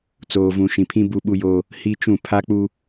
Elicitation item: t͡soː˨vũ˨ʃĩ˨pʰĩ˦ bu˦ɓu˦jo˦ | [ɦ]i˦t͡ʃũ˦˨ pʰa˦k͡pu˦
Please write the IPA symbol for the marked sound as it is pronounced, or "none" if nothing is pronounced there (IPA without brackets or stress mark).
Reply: h